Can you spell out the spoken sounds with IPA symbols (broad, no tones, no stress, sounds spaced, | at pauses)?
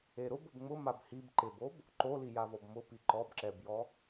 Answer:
e ɾ ʊ b ʊ b ŋ͡m ʊ m a b h i b ǃ ɪ b o b | ǃ o l i j a v ɔ b m ʊ p i ǃ ɔ b ǁ ɛ b j ɔ